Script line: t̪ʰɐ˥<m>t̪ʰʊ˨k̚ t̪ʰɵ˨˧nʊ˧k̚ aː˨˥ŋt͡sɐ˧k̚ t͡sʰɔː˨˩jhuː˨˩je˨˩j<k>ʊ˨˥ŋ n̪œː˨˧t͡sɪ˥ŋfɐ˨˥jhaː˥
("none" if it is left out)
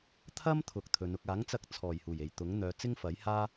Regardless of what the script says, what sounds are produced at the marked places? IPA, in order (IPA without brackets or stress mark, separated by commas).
m, t̪